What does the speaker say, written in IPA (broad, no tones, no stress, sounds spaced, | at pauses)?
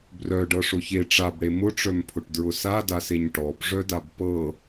b r œ ɖ ɤ ʂ ʊ ç e ʈ͡ʂ a b ɽ e m ʊ ʈ͡ʂ œ m pʰ ʊ ʈ d ɹ ʊ s a d a s e ɲ ʈ ɔ b ʐ œ d a b p ɤ